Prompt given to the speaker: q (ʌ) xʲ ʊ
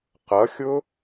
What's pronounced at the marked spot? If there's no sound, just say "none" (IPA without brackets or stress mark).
ʌ